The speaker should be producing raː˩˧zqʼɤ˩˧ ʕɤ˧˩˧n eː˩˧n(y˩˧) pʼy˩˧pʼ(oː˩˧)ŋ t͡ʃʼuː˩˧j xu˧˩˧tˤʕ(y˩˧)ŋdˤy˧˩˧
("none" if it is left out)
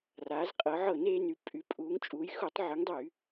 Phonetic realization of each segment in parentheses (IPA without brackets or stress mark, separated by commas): y˩˧, uː˩˧, y˩˧